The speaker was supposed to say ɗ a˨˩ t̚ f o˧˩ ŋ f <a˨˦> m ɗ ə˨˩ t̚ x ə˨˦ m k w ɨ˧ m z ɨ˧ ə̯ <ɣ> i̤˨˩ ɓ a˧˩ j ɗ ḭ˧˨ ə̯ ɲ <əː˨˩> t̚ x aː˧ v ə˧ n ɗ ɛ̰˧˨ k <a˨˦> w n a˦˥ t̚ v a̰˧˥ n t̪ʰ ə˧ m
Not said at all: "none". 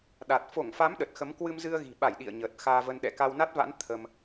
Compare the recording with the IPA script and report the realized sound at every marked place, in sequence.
a˨˦, ɣ, əː˨˩, a˧

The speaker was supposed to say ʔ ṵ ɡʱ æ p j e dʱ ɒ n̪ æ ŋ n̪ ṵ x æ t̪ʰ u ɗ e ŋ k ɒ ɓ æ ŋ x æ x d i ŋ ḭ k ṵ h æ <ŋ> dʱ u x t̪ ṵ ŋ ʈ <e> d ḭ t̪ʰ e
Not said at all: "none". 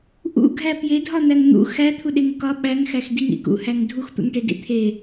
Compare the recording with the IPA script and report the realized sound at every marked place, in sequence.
ŋ, e

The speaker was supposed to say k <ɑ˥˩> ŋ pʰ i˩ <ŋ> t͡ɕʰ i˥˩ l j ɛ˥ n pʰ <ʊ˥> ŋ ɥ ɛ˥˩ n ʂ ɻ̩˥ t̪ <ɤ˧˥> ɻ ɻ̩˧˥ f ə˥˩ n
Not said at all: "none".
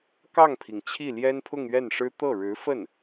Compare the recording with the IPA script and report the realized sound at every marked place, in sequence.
ɑ˥˩, ŋ, ʊ˥˧, ɤ˥˩

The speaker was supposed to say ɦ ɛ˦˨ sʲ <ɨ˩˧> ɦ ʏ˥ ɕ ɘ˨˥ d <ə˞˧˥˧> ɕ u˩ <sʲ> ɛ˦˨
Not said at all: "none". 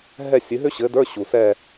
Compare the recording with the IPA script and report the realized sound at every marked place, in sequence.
ɨ˩˧, ə˞˧˥˧, s

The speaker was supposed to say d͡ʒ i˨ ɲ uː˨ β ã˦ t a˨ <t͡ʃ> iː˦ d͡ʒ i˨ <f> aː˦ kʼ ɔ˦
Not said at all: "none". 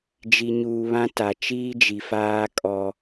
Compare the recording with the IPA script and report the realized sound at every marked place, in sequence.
t͡ʃ, f

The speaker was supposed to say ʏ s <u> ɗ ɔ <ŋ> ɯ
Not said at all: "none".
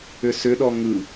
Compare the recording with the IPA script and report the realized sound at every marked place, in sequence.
ʏ, ŋ

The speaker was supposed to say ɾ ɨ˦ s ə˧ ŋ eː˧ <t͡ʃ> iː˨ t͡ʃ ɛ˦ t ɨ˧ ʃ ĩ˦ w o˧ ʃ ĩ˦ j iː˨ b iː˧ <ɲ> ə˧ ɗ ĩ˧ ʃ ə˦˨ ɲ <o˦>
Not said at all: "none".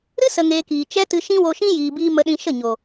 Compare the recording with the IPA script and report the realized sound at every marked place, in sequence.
k, m, o˨

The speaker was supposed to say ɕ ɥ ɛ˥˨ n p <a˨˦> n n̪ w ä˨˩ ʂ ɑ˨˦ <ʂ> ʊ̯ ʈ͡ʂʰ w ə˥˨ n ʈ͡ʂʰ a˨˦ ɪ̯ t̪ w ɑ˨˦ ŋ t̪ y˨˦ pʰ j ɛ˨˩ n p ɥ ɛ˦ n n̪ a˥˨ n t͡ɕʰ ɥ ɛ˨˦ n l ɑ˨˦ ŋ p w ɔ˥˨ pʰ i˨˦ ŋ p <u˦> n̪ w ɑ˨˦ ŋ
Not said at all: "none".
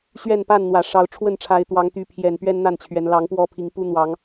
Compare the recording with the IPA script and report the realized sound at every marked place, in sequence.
a˥˨, none, u˦

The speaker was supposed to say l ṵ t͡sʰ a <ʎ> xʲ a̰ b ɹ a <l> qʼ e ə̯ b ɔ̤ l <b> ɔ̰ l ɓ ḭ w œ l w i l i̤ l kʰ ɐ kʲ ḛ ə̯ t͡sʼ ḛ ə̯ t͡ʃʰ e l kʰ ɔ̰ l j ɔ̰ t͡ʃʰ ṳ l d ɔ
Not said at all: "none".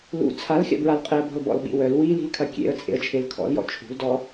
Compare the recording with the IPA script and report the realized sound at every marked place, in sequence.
l, l, b

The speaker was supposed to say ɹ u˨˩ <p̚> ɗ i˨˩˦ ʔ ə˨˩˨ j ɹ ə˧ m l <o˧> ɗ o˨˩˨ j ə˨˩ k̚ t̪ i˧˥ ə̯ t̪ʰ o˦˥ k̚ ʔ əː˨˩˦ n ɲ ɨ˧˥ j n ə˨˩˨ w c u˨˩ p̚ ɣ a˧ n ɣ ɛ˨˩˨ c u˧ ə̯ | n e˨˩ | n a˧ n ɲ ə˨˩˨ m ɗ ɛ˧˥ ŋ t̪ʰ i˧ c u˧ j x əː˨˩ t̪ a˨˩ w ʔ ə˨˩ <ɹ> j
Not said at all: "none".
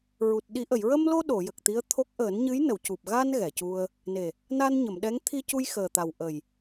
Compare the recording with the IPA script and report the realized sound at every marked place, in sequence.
t̚, o˧, none

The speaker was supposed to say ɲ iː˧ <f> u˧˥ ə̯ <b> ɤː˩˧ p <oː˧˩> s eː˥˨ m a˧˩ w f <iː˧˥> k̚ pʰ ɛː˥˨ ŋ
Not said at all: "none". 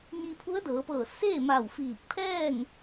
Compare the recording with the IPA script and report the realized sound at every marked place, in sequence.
pʰ, d, ɤː˧˩, iː˧˩

